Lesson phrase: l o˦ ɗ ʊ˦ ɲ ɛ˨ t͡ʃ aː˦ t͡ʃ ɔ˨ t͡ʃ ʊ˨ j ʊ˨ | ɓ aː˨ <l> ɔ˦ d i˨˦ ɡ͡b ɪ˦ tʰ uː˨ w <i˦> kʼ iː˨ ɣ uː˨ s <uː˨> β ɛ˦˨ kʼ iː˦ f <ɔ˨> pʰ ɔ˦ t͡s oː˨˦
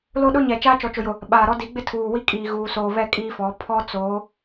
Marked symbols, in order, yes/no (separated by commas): no, yes, no, no